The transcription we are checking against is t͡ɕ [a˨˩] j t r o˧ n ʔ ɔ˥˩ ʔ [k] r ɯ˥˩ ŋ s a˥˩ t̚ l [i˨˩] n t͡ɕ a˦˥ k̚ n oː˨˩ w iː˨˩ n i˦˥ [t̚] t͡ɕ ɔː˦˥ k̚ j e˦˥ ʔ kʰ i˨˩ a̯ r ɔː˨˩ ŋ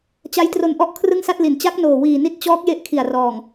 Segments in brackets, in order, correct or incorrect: incorrect, incorrect, incorrect, correct

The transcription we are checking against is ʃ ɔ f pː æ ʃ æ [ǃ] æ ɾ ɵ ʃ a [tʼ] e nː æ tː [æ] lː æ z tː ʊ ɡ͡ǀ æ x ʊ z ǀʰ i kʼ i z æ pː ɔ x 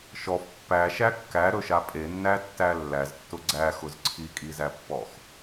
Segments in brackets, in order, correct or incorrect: incorrect, incorrect, correct

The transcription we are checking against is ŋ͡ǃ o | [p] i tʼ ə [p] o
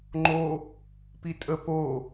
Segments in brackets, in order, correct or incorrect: correct, correct

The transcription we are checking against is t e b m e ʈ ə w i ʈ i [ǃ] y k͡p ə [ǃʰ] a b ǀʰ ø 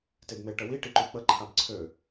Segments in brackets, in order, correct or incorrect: correct, correct

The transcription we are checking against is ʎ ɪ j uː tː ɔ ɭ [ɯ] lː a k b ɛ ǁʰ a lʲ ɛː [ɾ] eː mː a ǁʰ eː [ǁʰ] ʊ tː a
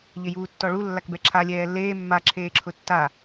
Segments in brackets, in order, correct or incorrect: incorrect, incorrect, correct

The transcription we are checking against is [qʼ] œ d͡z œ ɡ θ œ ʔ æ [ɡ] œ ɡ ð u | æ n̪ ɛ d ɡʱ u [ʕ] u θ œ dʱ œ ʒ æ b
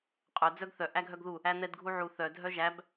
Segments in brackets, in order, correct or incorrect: correct, incorrect, correct

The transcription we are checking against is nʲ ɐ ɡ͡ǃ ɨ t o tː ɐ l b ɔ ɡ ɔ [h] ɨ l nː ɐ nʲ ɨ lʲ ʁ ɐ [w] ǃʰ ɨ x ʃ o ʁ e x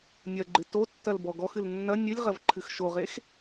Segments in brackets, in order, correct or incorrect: incorrect, incorrect

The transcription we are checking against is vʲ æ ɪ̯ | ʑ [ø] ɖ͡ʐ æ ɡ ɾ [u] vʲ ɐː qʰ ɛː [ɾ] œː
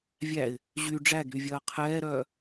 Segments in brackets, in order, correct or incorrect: incorrect, incorrect, correct

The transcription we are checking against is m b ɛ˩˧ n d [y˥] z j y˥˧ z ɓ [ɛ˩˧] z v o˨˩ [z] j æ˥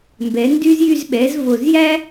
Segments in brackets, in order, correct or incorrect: correct, correct, correct

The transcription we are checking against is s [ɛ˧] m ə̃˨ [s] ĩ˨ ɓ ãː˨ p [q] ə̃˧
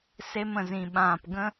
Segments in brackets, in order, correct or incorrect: incorrect, incorrect, incorrect

